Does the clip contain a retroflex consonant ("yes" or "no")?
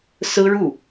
yes